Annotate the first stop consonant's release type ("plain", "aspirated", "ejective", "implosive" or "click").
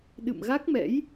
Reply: implosive